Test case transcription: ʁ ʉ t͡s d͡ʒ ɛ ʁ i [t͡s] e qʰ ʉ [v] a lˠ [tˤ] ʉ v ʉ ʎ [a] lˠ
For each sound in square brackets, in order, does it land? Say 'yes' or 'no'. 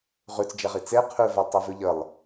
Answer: yes, yes, yes, no

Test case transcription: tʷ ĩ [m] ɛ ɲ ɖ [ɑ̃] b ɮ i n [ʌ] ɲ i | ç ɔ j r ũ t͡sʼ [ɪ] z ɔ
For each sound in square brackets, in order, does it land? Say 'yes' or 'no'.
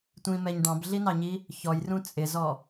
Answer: yes, yes, no, yes

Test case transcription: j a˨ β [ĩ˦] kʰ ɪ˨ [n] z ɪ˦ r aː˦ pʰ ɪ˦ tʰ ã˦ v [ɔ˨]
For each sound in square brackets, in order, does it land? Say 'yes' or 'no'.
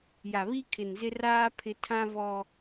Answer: no, yes, no

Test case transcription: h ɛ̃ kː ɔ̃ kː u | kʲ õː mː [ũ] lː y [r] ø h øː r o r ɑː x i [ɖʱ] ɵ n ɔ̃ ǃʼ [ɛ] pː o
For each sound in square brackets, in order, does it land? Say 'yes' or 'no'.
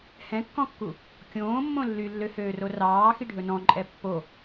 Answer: no, no, yes, yes

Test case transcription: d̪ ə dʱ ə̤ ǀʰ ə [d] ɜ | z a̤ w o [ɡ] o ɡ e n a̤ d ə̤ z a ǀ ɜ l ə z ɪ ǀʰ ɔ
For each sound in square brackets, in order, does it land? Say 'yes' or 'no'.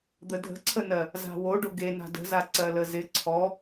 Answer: no, no

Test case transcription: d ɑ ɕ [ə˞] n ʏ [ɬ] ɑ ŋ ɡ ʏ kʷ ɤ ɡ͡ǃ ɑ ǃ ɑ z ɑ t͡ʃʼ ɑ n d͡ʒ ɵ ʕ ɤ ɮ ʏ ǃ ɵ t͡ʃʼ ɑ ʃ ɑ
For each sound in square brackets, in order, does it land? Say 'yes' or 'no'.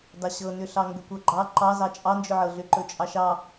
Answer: no, yes

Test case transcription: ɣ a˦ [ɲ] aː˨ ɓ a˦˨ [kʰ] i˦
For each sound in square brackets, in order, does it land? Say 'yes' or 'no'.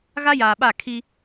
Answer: no, yes

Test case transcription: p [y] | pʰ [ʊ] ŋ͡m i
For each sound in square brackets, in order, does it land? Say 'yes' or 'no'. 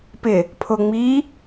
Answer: no, yes

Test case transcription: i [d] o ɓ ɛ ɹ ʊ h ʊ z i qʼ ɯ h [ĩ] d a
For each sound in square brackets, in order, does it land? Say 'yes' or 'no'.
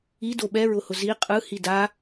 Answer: yes, no

